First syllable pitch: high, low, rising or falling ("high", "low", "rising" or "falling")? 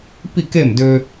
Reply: falling